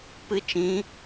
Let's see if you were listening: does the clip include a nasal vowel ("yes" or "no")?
yes